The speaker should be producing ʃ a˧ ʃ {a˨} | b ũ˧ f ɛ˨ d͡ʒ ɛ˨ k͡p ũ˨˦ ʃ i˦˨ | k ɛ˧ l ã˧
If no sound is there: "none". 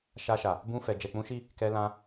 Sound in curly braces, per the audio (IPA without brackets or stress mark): a˨